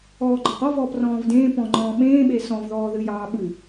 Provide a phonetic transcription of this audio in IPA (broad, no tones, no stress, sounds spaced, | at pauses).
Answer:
ɔː ɡ͡ǃ ɒ q ɔ v ɔː p r ɔ̃ː v d ẽː p ɔ̃ ŋ͡ǃ ɔ̃ː ɓ ẽː ɓ e s ɔ̃ v ð ɔː ð ɨ j ɑː ɓ ɨ